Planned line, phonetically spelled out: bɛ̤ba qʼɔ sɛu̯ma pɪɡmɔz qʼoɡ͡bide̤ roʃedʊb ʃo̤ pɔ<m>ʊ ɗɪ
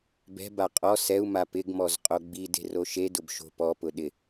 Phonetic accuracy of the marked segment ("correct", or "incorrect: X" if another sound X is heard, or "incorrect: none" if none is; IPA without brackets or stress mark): incorrect: p